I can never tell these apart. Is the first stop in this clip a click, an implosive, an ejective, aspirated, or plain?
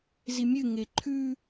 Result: click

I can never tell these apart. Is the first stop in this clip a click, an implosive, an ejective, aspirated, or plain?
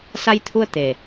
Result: aspirated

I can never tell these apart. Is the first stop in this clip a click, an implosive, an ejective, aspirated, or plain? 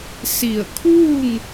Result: aspirated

